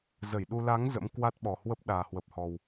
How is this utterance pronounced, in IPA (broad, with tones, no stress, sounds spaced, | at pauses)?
z ə˧˩ j ɗ u˧ l a˨˦ ŋ z ə̰˧˥ m k w a˦˥ t̚ ɓ ɔ˨˩ h w ə˦˥ p̚ ɗ aː˨˩ h w ə˨˩ p̚ h ɔ˨˩ w